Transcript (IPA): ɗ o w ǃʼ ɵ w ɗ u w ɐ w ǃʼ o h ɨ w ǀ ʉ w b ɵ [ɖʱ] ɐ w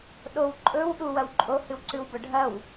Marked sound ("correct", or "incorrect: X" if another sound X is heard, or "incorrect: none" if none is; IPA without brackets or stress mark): correct